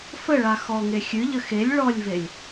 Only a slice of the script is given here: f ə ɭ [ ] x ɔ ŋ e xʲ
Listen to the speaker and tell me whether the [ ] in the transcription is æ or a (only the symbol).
a